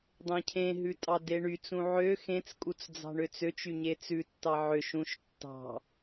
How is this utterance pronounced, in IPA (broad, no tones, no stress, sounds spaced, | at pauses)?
dˤ ẽ cʰ ẽ ɦ ʉ tʼ ɑ d e ɳ y t͡s ũ ʕ ø x ẽ t͡s kʼ u t͡s d͡z ɑ̤ ɳ ø t͡s ø t͡ʃ y ɲ e t͡s ʉ tː ɑ ʕ ø ʃ ũ ʃ tː ɑ̤